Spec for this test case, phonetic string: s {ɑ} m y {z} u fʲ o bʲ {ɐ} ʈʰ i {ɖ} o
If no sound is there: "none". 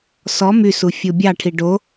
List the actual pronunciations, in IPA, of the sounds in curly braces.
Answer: ɔ, s, ɑ, ɖ

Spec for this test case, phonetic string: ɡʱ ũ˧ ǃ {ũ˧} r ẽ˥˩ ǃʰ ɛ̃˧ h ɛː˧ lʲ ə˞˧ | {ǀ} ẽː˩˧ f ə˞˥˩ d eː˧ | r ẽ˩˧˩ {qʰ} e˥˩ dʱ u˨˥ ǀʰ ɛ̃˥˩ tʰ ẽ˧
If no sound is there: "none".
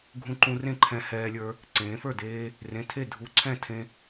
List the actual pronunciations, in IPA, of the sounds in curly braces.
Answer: ũ˧, ǀ, tʰ

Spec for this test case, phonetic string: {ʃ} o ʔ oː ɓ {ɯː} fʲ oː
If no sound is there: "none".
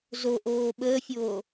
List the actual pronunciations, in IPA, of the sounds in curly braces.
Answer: z, əː

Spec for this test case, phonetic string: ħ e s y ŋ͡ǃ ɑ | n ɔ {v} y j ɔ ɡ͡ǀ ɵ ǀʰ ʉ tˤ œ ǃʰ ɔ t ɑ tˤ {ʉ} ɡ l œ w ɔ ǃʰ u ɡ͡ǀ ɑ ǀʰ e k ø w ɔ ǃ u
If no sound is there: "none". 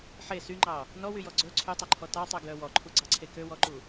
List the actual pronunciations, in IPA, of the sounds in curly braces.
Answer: w, ø

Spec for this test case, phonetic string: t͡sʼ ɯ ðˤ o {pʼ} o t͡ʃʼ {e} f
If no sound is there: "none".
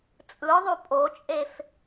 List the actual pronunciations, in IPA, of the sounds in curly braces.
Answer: pʼ, e

